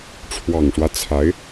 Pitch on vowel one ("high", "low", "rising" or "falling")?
low